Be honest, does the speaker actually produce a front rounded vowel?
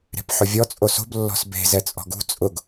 no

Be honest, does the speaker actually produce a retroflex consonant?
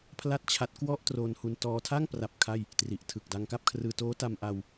no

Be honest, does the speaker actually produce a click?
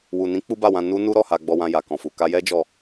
no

